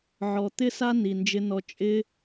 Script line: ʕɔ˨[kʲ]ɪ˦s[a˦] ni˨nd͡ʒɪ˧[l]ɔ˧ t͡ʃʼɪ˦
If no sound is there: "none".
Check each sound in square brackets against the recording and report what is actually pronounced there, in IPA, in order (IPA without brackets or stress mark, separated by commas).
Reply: t̪, a˦, n